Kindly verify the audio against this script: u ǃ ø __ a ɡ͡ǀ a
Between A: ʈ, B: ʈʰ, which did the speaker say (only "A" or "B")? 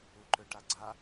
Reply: A